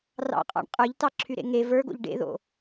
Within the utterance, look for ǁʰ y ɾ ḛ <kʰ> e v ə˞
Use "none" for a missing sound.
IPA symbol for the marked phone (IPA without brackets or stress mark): ŋ